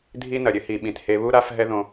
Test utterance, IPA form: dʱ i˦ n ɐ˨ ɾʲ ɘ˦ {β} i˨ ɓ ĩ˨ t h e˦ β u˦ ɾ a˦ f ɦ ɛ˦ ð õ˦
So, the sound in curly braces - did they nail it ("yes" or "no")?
no